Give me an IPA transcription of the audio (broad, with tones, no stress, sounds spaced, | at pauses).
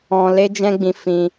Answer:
ɔ̃˧ l e˦ d͡ʒ ɛ̃˦ ɡ͡b ĩ˧ f ĩ˧